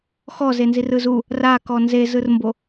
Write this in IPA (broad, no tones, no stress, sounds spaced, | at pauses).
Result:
x ɔ z e n z i r ɯ z u | r a k ɔ n z e z ɯ r m b o